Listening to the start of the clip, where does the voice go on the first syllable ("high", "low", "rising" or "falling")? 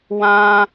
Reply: high